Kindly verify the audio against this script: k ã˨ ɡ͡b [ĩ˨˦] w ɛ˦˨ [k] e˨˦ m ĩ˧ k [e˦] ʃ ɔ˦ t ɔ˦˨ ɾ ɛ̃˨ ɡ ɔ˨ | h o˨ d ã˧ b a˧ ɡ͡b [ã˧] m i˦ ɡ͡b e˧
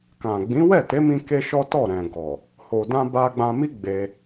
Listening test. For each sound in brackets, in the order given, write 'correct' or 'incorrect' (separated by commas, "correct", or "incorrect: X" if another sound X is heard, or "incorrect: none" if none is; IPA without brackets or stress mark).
correct, incorrect: t, correct, correct